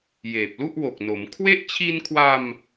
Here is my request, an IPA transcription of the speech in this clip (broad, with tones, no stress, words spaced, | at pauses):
jeː˨˩p̚lu˥˩ʔwo˨˩k̚no˩˦m kʰwe˥˩ʔ t͡ɕʰi˧nkʰwa˧m